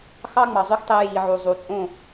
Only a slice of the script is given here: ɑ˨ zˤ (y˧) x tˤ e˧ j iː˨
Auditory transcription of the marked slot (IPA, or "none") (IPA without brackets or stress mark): y˧